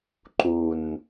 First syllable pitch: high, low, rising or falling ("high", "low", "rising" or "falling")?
low